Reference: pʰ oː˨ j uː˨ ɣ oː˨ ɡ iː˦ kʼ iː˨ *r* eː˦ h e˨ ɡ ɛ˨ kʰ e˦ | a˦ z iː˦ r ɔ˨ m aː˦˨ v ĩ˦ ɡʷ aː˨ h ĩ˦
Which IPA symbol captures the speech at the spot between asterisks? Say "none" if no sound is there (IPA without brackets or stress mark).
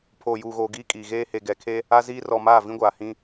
ɣ